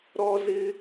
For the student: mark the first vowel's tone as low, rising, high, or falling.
high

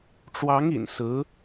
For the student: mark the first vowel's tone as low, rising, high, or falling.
rising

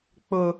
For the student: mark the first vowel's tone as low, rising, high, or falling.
low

